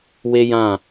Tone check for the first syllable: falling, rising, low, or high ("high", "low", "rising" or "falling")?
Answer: high